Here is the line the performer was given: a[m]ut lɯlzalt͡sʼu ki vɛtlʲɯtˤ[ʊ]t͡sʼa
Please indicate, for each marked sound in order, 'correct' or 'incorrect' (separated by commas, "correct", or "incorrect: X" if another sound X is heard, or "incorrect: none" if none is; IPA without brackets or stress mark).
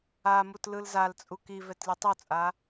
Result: correct, incorrect: u